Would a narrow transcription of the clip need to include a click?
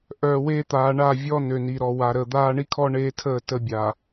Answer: no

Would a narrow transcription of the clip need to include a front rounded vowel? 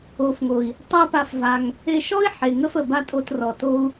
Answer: no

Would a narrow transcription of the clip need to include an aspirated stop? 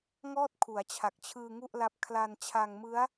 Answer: yes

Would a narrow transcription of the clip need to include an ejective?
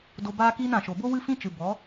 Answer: no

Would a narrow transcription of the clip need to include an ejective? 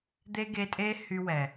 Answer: yes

